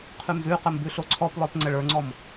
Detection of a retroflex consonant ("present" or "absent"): present